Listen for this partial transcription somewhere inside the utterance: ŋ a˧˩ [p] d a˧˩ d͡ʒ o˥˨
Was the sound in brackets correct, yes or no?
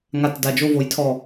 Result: no